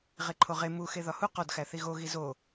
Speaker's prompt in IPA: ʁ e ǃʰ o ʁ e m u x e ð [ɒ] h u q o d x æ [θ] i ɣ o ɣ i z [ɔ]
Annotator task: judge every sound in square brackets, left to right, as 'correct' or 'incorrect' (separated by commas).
correct, correct, incorrect